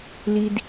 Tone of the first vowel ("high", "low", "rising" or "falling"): low